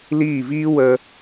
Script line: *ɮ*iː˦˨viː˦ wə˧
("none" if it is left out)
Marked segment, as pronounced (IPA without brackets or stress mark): l